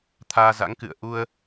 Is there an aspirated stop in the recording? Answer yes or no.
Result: yes